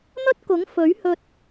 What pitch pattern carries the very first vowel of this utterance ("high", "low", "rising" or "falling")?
high